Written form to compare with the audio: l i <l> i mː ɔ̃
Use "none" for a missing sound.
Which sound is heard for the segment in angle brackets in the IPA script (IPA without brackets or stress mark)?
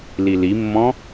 l